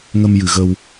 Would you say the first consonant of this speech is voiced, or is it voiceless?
voiced